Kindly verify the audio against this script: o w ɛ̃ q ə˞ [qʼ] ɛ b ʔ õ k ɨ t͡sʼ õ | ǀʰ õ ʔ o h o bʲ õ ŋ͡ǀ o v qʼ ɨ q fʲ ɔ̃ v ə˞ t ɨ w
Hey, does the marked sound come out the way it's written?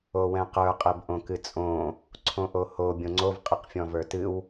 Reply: yes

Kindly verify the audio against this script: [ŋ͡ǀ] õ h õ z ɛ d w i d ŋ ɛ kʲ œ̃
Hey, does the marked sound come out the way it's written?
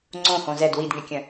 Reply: yes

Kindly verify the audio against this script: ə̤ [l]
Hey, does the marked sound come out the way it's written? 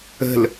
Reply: yes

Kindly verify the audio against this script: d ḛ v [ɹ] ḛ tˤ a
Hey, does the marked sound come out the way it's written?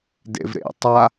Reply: no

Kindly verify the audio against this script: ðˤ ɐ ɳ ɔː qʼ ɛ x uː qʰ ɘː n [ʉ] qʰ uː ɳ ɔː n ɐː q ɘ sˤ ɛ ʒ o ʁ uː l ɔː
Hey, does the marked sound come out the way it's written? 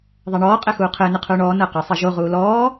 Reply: no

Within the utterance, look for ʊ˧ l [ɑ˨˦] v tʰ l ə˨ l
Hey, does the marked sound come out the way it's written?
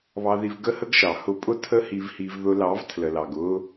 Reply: yes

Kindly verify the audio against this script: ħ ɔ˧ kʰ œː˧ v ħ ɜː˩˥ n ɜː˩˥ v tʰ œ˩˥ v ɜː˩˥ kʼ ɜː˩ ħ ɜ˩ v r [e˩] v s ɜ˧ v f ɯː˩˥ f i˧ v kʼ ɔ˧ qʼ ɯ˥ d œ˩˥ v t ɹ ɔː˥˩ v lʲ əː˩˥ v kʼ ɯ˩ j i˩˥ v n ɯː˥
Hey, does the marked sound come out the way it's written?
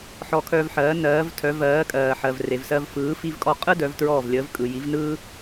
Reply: yes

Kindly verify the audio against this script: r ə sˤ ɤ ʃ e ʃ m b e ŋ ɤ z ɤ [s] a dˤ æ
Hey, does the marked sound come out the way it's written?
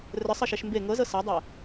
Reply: yes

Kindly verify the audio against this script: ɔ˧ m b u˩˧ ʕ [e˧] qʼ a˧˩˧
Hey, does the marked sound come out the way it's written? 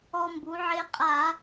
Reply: yes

